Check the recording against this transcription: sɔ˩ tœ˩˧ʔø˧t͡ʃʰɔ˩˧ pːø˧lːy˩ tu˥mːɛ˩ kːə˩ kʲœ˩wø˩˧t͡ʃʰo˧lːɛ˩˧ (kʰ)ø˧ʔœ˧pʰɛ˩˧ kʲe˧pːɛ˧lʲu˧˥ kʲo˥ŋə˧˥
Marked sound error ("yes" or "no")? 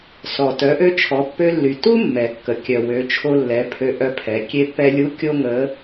yes